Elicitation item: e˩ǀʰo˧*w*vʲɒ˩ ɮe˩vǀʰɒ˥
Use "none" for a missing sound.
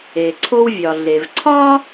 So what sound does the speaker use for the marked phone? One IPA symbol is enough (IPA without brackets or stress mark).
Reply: w